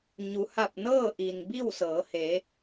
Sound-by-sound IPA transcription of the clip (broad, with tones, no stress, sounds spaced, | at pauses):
ɲ u˩˧ h a˧˩ p̚ n ɤː˥˨ ʔ i˩ n b i˥˨ w s ɤː˩˧ h e˩˧